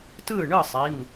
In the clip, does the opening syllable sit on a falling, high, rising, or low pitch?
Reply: falling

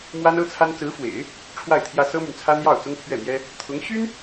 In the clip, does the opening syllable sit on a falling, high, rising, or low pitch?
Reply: high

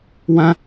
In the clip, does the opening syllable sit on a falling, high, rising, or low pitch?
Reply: high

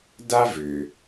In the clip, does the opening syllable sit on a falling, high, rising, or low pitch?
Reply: high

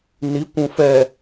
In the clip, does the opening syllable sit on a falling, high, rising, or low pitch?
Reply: rising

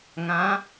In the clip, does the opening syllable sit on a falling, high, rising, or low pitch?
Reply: rising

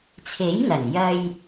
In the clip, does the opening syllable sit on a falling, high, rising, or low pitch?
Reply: rising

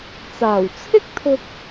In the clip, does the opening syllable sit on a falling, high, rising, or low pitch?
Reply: low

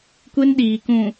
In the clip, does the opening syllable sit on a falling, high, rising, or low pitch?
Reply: high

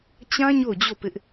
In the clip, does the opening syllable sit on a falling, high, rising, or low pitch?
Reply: high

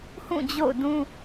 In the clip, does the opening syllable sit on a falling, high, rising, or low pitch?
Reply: falling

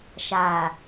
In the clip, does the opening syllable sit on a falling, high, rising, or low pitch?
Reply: low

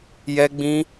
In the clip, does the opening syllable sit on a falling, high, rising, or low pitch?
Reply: high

